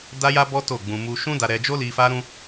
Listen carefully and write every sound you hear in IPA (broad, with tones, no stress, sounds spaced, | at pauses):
d a˦ j a˦ b ɔ˦ t o˦˨ ɡ͡b ũ˧ m u˦ ʃ ũ˦ d a˧ ɾ ɛ˧ d͡ʒ o˦ l i˧ f a˦ ɾ ũ˦